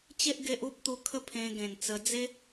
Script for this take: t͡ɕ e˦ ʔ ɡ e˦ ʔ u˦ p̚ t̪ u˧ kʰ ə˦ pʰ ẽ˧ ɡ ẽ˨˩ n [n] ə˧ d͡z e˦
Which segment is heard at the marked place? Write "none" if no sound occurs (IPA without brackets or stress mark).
t͡s